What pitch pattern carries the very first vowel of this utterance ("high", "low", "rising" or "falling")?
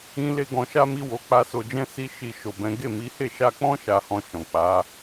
high